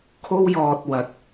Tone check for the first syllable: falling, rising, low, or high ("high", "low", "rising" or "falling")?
high